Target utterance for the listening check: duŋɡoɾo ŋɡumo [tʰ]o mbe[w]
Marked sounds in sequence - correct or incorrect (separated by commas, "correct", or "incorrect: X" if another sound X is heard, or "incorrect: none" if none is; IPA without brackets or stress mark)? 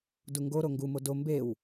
incorrect: d, correct